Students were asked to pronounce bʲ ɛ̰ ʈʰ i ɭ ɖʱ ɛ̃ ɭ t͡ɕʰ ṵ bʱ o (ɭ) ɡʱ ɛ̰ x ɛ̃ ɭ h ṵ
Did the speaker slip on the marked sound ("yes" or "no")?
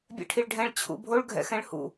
no